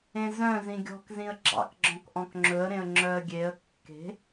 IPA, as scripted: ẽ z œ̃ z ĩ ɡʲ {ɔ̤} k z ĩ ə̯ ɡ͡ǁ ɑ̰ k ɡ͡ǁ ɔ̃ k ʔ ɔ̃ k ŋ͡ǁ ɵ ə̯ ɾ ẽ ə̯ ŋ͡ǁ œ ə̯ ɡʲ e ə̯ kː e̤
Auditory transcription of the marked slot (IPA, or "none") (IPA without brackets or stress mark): ɔ̤